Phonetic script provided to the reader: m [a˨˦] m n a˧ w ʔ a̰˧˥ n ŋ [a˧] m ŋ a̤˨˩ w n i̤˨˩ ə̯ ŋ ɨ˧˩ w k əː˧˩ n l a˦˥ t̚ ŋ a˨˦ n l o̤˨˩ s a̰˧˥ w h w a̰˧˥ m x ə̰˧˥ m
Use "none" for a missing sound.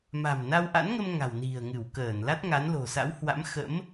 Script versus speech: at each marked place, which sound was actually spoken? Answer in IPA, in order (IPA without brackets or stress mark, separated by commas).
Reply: a̤˨˩, ə˧